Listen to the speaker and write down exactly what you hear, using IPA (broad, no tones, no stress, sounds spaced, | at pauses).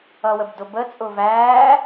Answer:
ʌ w ə b d ʊ b ə t͡sʼ ʊː v æː